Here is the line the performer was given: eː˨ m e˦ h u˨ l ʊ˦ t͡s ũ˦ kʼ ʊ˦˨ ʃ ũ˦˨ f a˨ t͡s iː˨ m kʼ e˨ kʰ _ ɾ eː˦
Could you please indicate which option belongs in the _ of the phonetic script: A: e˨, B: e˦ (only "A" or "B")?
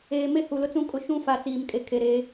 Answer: A